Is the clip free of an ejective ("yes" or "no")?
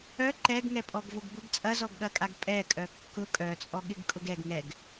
no